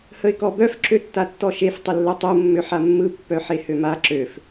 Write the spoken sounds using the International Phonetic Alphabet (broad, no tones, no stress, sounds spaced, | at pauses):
h ə ɪ̯ k ɔ b œ f ǁ ø tː a tː ɔ ʃ e f tˤ ə lː œ tˤ u mː ø ħ a mː ɯ pː œ ħ e h ø m a ǁ ø f